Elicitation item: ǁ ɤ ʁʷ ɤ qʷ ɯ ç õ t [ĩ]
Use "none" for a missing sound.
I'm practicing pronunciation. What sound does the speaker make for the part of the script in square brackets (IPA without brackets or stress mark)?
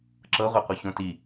i